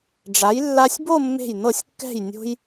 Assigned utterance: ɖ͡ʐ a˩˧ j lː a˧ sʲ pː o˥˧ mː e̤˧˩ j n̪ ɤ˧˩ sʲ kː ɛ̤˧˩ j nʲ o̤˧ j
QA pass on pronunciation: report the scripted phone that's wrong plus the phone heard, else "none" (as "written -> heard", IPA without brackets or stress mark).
pː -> b